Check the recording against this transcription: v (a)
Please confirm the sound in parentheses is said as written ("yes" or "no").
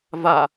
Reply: yes